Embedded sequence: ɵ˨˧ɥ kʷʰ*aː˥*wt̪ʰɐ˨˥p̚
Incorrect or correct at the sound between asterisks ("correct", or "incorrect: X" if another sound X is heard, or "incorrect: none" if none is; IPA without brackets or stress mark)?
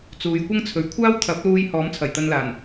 correct